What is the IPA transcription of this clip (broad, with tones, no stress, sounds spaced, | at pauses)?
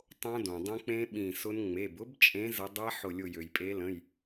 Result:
tˤ õ˦˥ d õ˩ dˤ ə̃˦˥ k͡p ẽ˦˥ ɓ ĩ˧˩ s ʊ˦˥ n ŋ͡m e˩˧˩ b ʊ˦˥ b t͡ʃʼ ẽ˨˦ z ə˨˦ dˤ æ˦˥ ħ ʊ˧˩ lʲ ʊ˧˩ j ø˩ j pʼ e˨˦ l ə̃˩˧˩ j